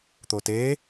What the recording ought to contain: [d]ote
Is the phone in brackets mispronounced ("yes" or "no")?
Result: yes